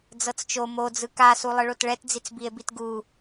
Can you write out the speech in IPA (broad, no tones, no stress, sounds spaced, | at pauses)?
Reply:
d͡z ɤ t͡s t͡ʃ o m o d͡z ɯ k a s u lˠ ɯ ɭ o t ɭ ɛ t d͡z i t͡s b i e̯ b i t ɡ u